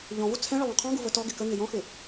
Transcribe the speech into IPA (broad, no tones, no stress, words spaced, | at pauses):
ʎɔ̃vu t͡sʰɛ̃ɭə lˠũqʰɔ̃ɡu vətɔɡɪ kəŋɪ jɔ̃xɪ